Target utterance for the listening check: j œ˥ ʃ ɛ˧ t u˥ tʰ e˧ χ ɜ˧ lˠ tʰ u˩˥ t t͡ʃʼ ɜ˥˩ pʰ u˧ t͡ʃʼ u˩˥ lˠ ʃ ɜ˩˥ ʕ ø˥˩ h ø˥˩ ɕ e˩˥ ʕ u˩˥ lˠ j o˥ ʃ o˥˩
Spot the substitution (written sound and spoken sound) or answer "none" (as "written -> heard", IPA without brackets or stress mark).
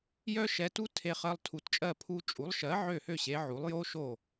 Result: none